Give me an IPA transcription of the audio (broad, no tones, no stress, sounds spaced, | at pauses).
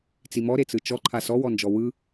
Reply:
t͡s i m ɔ ɾ e t͡s ɯ t͡ʃ ɔ ǃʰ a s ɔ w ɔ n d͡ʒ ɔ w ɯ